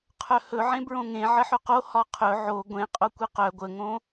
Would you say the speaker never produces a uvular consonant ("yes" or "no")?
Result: no